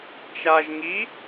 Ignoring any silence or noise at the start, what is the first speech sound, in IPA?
t͡ʃ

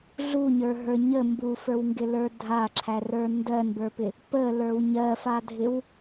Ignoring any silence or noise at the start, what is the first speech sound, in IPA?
ɮ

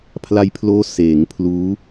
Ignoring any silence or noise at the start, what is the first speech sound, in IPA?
pʰ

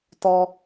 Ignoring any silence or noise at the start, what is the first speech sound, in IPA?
t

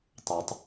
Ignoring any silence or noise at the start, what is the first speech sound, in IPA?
tˤ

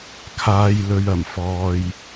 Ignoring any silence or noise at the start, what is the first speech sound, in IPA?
kʰ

